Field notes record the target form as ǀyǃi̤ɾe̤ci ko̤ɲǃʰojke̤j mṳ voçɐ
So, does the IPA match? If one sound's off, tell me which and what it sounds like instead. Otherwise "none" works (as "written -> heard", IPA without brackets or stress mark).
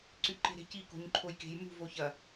i̤ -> e̤